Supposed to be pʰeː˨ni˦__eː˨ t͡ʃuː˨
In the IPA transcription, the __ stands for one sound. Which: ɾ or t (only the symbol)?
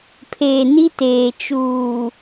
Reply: t